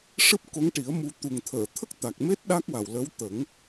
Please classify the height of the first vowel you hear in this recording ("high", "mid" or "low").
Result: high